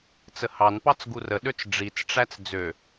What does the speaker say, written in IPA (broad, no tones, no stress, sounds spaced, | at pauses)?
t͡s ə h ɑ n p ɑ t͡s ɡ u r ə ɗ ø t͡s ɖ͡ʐ i t͡s ʈ͡ʂ æ t͡s d͡z ø